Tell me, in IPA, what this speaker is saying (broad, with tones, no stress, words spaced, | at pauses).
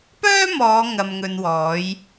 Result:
pœː˥mɔː˨˧ ŋɐ˧mŋɵ˧nwɔː˨˥j